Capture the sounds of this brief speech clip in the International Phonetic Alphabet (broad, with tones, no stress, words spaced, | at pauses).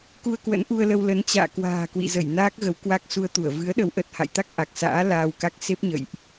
ku˧ə̯kwə̰˧˥nʔu˧ə̯lə˧w lə˨˦nt͡ɕa̰ː˧˨ kwa̤ː˨˩kwḭ˧˨zə˧˩j naː˦˥k̚ɣə˨˦wkwa˦˥k̚ su˧ə̯t̪u˧˩ə̯ vɨ˨˦ə̯ɗə˨˦wʔə˨˩t̚ ha̰˧˨jt̪a˦˥k̚ ʔa˨˩k̚sa̰ː˧˥ laː˧wka˦˥k̚ se˦˥p̚ɲə̰˧˨jʔ